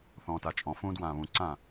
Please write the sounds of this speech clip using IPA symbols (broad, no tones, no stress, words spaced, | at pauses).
θɔ̃ːtat͡ʃʼɔ̃fũː dwãːβũǀã